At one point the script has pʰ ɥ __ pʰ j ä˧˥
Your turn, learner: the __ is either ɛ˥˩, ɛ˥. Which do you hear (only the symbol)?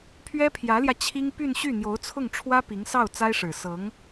ɛ˥